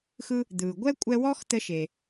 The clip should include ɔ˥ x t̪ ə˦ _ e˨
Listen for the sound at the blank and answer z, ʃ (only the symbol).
ʃ